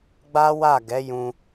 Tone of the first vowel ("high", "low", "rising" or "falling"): high